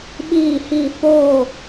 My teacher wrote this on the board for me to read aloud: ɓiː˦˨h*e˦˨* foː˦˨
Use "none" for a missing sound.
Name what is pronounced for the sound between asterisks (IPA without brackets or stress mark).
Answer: i˦˨